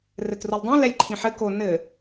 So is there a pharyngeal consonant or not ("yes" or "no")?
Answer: yes